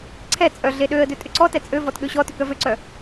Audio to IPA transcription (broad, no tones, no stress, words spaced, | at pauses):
ǀʰɛ t͡sʼœɮeɗøə̯dʏ tʼʏǀɔtɛ t͡sʼøvɔt ɠøɕɔtʏ kœvøǀœ